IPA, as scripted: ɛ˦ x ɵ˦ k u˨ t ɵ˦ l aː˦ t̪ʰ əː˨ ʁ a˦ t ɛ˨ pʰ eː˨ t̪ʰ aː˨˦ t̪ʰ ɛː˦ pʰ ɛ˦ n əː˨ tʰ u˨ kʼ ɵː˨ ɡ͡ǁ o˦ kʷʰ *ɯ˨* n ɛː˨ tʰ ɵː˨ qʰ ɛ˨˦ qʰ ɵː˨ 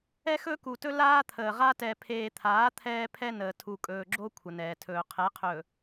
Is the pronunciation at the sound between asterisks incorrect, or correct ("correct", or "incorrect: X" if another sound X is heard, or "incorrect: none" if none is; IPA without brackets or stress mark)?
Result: incorrect: ə˨